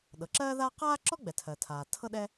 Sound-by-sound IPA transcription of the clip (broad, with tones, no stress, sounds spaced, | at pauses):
ɗ ɤ˩ ǁ ɜː˥ ð aː˥ q aː˥ ǁ ɔ˥ ɡ͡b ɛ˩ tʰ ɜ˩ tʰ aː˩ tʰ ɤ˥ ɗ ɛ˥